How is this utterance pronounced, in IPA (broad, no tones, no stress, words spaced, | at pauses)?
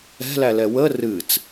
ɛ̤lælɛ wə rɨt͡s